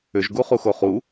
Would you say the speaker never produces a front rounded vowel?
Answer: no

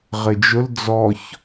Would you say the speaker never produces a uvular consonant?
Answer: no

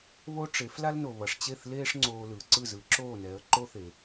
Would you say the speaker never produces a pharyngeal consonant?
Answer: yes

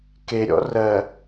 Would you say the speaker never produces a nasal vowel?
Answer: yes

